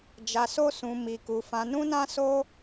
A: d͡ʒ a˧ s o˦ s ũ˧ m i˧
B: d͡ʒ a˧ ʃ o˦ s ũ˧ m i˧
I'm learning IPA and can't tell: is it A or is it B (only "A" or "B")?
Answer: A